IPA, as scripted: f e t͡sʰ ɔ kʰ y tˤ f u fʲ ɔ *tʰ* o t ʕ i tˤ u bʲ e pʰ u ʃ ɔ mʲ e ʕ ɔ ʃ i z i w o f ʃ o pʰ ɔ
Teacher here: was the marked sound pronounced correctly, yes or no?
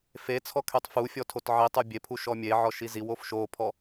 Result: yes